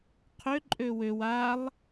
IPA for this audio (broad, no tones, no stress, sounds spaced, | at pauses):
qʰ ø ǃʼ ø w ø w a lˠ